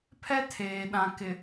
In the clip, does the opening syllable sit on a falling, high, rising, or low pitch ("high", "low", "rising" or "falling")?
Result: high